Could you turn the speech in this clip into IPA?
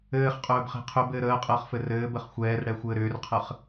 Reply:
ɘː χ qʼ ɵː b χ e̤ qʰ ʏ b ɘː ɾ əː qʼ əː χ f ɘ r ɘː b ə χ xʷ ɛː r ɽ ɛ xʷ ɘː ɾ ʏː r qʰ ə χ

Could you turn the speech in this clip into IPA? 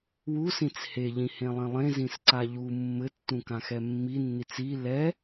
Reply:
w u s ĩ t͡s h e ʎ ĩ h ẽ lˠ ĩ lˠ ẽ z ĩ s ǀ a ʎ u mː ɘ tː ũ k ã x ɛ mː i nː i t͡s i l ɛ

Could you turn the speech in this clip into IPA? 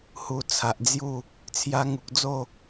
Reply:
h u˨˩ t͡sʰ a˨ ʔ d͡z j u˥˧ | t͡sʰ j a˧ ŋ u˨ k̚ d͡z o˥˧

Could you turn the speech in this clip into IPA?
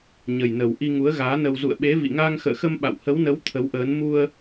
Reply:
ɲ ə˨˩ j n ə˨˩ w ʔ i˧ ŋ u˨˦ ə̯ ɣ aː˨˦ n ə˧ w z ṵ˧˨ ə̯ ɓ e˨˦ v ḭ˧˨ ŋ aː˧ ŋ x ə̰ː˧˨ x ə˧ m ɓ a̰˧˨ w h ə˨˦ w n ə˨˦ w t̪ʰ ə˨˦ w ʔ əː˨˦ n m u˧ ə̯

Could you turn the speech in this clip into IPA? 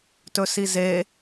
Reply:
t ɵ s i z e

